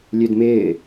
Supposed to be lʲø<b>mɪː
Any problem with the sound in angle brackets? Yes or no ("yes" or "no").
yes